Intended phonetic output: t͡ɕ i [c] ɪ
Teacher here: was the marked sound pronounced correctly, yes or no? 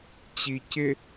yes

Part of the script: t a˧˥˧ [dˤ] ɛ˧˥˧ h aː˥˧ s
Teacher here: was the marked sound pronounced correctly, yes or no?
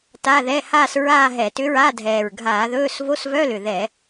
no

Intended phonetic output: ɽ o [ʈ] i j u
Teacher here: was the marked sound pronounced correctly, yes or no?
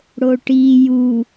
yes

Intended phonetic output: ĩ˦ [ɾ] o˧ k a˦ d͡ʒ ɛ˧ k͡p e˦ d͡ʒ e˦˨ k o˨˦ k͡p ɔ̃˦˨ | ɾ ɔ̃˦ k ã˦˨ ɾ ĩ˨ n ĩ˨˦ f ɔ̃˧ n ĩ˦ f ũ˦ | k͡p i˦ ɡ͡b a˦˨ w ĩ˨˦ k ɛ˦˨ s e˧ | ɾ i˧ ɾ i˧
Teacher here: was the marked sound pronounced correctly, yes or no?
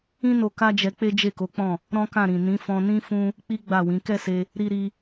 no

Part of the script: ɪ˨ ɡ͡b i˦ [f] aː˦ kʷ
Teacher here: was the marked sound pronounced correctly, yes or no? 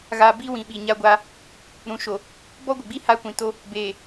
no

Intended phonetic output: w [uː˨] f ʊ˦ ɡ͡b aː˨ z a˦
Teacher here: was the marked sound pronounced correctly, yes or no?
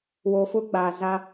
no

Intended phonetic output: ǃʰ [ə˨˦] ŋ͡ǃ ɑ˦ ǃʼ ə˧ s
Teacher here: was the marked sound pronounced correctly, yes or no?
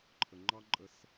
no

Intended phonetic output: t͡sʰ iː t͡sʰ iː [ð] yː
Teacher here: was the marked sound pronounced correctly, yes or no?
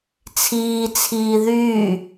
yes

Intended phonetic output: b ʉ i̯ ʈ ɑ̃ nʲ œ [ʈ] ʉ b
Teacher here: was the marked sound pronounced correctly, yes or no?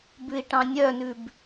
no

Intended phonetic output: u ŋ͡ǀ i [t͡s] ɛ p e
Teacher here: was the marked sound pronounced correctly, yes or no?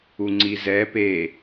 no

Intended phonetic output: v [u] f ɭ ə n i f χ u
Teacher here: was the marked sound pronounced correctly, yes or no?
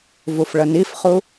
yes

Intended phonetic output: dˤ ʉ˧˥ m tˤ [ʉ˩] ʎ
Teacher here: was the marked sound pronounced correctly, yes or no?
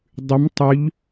no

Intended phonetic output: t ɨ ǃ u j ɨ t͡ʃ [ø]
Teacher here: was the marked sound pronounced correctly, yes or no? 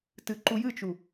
no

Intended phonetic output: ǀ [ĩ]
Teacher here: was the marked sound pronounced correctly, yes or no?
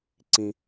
yes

